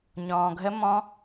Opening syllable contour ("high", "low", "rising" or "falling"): low